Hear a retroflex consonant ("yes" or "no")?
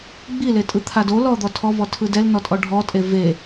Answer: yes